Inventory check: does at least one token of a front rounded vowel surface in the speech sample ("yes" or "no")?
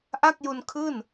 no